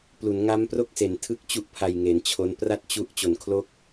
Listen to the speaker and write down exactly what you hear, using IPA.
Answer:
p l u˩˦ n ŋ a˦˥ m p r o˥˩ k̚ s e˩˦ n tʰ ɯ˥˩ k̚ t͡ɕ u˥˩ ʔ pʰ a˧ j ŋ e˩˦ n t͡ɕʰ o˦˥ n p r a˥˩ t̚ t͡ɕ u˦˥ ʔ t͡ɕ o˨˩ n kʰ l o˥˩ k̚

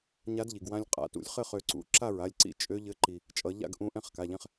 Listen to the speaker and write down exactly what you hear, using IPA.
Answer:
ɲ a˧˥ d ʎ i˩ ɡ w ã˧ lʲ qʼ a̰˩˧˩ t ṵ˨˩˦ lʲ χ ɘ˥˨ χ ø˧ ǀ ṵ˧˥ ǁ a˥˨ ɹ a˩˧˩ lʲ ǀ ḭ˧˥ t͡ʃʼ ø˧˥ ʎ ɘ˧˥ ǃ i˩ | t͡ʃʼ ʌ˨˩˦ ʎ a̰˥˨ ɡ ʔ ũ˧˥ ʔ ɛ̃˥˨ χ k a˩˧˩ ʎ ɛ̃˧ χ

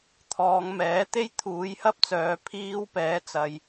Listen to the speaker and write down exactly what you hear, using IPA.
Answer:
t̪ʰ ɔː˨˧ ŋ m ɛː˨˥ t̪ e˥ j t̪ʰ uː˨˥ j h ɐ˥ p̚ t͡s œː˨˧ pʰ iː˧ w p ɛː˨˥ t͡s ɐ˨ j

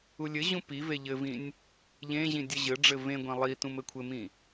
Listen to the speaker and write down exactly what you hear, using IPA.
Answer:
u lʲ ɘ ʑ ũ p i v e ʎ ɘ v ĩ nʲ | ʎ ẽ ʑ ĩ dʲ ɘ ʑ ɘ ɖ͡ʐ ɘ v ẽ ɡʷ ẽ lˠ i t ũ m ɘ kʷʰ ɘ m ĩ

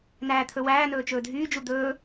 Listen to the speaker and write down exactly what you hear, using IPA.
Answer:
n æː t̪ʰ ɵ w æː n ɵː t͡ʃ ɵː dʱ yː d͡ʒ u d̪ ɵː

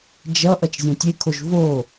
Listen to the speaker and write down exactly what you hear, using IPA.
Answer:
d͡ʒ ʌ ʔ ʌ t͡ʃ zʲ õ tʲ e kʰ o ʒ v o

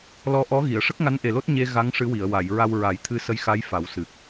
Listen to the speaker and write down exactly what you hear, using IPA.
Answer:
l ɔ˧˥ ʔ ɔ˧˥ ɣ i˨˩˨ ə̯ ʂ ə˦˥ k̚ ŋ a˧˥ n ʔ e˨˩ l o˦˥ t̚ ɲ e˧ ɣ a˧˥ ŋ ʂ ɨ˧˥ w i˨˩˨ ə̯ w a˨˩˨ j ɹ a˧ w ɹ a˨˩˦ j t̪ʰ ɨ˧˥ s ə˧˥ j x a˧˥ j f a˨˩˦ w s ɨ˨˩ k̚

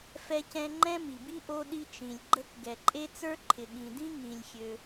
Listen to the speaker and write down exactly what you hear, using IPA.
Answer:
f ɛ˥ c ɛ̃˥ ŋ͡ǃ ɛ̃˥ m i˩ b i˥ ʔ o˥ ɗ i˥ t͡ʃ ĩ˩ lʲ ɡ͡ǃ ə˥ k ɡ ɛ˩ ǃʼ e˥ t͡s ə˞˥ ǃʰ ɪ˩ ɠ ĩ˩ d ĩ˥ ŋ ĩ˩ lʲ xʲ ø˩

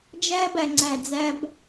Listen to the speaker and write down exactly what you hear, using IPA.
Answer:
d͡ʒ æ˧ b æ˨ ŋ͡ǀ æ˨ d͡z æ˧ b

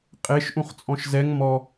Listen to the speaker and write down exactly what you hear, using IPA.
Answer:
qʼ e ʃ ʔ ũ χ t͡sʼ ɔ̃ ʃ z ɛ ŋ m ɔ

